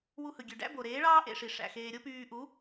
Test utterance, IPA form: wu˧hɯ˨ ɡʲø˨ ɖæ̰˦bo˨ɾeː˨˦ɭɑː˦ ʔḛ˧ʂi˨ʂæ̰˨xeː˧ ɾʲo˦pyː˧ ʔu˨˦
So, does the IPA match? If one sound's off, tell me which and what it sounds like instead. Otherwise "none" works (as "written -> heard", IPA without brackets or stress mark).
none